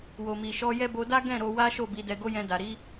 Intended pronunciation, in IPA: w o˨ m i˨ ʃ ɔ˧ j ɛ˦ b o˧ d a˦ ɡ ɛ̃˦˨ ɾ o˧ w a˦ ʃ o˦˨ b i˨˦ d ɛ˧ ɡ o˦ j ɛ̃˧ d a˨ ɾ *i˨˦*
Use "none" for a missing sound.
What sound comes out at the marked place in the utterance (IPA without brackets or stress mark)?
i˨˦